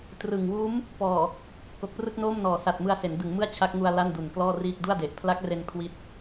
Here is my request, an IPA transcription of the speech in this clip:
trɯ˨˩ŋ wuː˦˥m | pɔː˨˩ | ko˨˩k̚prɯ˥˩k̚noː˥˩m nɔː˨˩sa˨˩t̚mɯ˧a̯se˩˦n dɯ˩˦ŋmɯ˥˩a̯ t͡ɕʰa˦˥k̚ŋu˧a̯ la˥˩ndu˨˩nklɔː˥˩riː˥˩k̚ du˥˩a̯de˨˩ʔ pʰla˦˥k̚re˧n kʰwi˦˥t̚

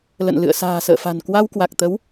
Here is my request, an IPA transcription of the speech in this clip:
lə̰˧˨nlɨ̰˧˨ə̯ sa̤ː˨˩sə̰ː˧˨fa̤˨˩n kwa˧wkwa˨˩k̚t̪ə˨˦w

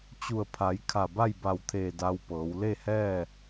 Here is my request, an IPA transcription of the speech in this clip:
t͡ɕu˧˩ə̯pʰa˩˧j kʰa˧˩ba˥˨jba˧˩wt̪ʰeː˧˩ da˧wpɤː˩˧w le˥˨hɛː˥˨

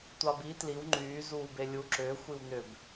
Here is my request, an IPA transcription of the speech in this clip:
tʷɑbi tliw ŋ͡ǃyː zuːbelʲu ǁʏː xʷiwnʏb

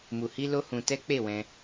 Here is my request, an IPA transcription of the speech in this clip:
mu˧hi˦lo˦hũ˧ tɛ˦k͡pe˦˨wɛ̃˧

